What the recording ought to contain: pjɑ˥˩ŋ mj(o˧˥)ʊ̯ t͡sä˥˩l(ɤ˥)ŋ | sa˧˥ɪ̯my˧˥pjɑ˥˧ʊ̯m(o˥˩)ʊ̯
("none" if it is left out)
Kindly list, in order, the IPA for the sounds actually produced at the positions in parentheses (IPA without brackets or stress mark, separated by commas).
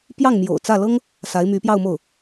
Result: o̰˨˩, ɤ˥, o˥˩